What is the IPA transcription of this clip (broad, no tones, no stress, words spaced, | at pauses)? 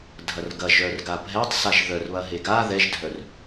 dʱɐrɡɐʒœrɡa bʱɛtˤsaʒ ðœrβɐ ɦeɡa ðɛʒdʱœr